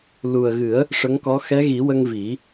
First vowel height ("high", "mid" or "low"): high